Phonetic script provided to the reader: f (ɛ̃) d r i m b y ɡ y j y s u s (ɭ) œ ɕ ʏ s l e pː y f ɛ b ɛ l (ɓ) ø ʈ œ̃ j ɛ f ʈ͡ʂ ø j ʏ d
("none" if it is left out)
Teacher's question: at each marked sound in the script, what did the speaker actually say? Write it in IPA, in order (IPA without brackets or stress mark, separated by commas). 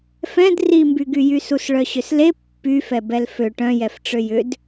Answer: ɛ̃, ɭ, f